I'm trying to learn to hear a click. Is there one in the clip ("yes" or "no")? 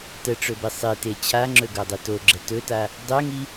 yes